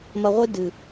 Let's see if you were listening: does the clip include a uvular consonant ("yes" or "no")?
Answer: yes